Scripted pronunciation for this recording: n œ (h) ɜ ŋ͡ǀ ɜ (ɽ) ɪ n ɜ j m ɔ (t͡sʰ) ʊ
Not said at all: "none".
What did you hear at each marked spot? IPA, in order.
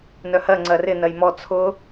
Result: h, r, t͡sʰ

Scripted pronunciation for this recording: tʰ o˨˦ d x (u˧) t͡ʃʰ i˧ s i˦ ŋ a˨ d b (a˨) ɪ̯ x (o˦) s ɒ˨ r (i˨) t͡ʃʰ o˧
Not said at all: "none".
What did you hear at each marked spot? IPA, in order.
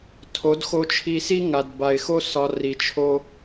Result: o˧, a˨, o˦, i˨

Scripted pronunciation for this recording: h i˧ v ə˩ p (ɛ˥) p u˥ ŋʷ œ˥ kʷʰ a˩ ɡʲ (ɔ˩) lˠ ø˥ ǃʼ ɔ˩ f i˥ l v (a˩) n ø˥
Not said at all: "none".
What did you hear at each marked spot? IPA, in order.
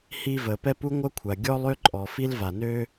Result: ɛ˥, ɔ˥, a˩

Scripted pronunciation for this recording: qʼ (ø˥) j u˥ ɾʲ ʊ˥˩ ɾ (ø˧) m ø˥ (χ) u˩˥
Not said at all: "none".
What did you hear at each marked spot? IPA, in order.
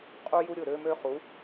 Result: u˥, ø˧, χ

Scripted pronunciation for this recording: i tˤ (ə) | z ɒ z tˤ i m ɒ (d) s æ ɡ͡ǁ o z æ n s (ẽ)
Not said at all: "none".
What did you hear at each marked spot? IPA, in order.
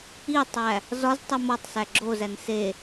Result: æ, tˤ, e

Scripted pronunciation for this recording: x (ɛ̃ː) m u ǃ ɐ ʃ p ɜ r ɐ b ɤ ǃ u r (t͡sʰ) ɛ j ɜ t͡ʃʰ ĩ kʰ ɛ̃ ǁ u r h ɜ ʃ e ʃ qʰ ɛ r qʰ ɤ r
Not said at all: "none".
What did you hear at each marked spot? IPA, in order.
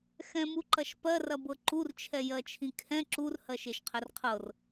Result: ɛ̃, t͡ʃʰ

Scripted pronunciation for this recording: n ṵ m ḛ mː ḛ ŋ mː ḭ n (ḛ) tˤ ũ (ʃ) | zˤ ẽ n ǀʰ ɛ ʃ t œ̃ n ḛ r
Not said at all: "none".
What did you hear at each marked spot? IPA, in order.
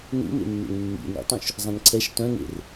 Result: ḭ, ʃ

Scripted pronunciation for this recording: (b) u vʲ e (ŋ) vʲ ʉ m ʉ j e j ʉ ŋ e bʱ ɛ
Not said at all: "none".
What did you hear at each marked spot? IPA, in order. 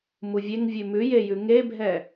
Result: m, ŋ

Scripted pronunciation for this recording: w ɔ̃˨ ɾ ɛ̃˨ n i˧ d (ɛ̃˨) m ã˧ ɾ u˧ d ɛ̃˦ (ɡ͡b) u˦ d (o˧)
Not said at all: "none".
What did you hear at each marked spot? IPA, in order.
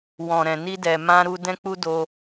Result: ɛ˨, k͡p, o˧

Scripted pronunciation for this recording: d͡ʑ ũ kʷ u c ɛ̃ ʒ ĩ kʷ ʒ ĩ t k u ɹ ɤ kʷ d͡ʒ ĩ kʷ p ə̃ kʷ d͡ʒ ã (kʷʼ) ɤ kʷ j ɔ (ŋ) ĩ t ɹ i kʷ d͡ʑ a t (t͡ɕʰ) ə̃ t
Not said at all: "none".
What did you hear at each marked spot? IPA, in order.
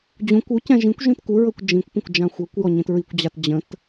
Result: xʷ, ɲ, d͡ʑ

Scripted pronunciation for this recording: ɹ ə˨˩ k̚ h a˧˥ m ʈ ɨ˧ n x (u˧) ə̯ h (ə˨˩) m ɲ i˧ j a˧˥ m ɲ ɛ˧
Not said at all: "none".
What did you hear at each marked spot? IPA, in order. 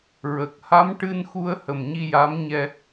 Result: u˧, ə˨˩

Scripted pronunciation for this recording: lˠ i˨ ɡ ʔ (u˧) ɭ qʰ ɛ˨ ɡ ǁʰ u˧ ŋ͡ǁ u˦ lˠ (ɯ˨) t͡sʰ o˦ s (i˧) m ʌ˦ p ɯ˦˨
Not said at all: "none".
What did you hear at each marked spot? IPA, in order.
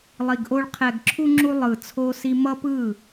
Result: o˧, ɯ˨, i˦

